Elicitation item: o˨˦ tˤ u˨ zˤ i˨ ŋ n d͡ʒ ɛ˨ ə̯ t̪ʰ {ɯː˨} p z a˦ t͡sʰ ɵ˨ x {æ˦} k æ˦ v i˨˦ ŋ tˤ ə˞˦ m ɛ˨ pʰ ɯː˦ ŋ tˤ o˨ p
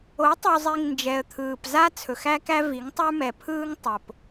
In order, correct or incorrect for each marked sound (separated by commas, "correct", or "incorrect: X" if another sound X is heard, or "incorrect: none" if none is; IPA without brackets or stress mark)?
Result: correct, correct